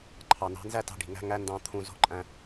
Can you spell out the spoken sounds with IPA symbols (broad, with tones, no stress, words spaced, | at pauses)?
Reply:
ǃʰɑ˨nɑ̤˨˦nzæ˦tɑ̤˧ ɖi̤˨ŋæ̤˦ ŋæ˦ ndɑ̃˧ t̪ʰũ˧ zo̤˧ǃʼæ̃˧